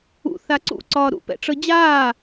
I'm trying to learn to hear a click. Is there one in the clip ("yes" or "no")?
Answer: yes